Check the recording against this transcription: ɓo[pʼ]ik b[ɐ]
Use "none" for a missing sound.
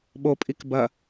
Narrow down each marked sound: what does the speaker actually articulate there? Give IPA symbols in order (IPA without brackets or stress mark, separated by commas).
pʼ, ɐ